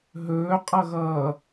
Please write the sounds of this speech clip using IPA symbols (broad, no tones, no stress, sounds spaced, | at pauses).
ɦ ɵː qʼ ʌ ɣ ʌː